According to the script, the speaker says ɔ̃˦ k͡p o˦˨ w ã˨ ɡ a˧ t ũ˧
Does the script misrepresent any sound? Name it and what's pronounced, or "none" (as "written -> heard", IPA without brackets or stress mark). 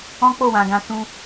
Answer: a˧ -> ã˧